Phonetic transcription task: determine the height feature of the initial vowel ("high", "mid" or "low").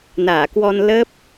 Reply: low